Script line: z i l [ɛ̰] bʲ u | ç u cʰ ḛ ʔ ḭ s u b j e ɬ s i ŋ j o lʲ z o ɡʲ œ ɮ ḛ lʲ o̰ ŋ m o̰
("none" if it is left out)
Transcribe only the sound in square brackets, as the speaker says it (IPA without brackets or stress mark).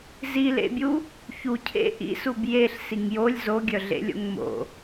ḛ